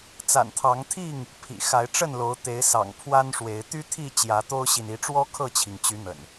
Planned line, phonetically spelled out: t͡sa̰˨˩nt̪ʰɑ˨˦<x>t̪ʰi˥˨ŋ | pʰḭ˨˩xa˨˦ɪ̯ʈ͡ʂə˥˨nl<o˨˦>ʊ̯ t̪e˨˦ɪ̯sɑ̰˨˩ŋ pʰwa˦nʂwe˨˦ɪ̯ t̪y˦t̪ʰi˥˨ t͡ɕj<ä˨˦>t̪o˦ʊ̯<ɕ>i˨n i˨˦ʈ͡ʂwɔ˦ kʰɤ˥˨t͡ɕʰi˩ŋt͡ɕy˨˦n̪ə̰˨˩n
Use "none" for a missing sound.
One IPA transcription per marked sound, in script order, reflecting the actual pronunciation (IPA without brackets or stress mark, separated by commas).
ŋ, o˨˦, ä˨˦, ɕ